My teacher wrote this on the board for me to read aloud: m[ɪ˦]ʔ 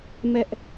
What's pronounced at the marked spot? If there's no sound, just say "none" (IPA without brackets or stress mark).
ɛ˦